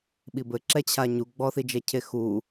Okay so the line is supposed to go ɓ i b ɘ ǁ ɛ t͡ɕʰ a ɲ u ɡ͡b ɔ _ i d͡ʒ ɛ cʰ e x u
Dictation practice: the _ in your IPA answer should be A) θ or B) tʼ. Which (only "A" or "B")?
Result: A